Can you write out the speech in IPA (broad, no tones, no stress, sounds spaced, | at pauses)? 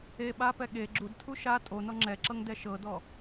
e ɓ a p ɛ ɠ e ɡ͡ǁ u d tʰ u ʃ a tʼ o n ɔ ŋ͡ǁ ɛ ǁ ɤ ŋ d ɛ ʃ ɤ d ɔ